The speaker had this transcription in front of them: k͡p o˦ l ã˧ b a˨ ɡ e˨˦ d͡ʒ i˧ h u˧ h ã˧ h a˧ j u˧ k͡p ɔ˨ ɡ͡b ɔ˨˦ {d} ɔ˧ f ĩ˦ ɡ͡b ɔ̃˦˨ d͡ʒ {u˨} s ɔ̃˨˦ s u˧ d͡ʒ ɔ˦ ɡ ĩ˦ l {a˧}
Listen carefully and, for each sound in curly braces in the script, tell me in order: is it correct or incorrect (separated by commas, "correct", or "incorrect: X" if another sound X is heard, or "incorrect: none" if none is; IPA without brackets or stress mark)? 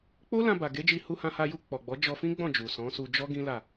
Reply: incorrect: d͡ʒ, correct, incorrect: a˦˨